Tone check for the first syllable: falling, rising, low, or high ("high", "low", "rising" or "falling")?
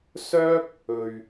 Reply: high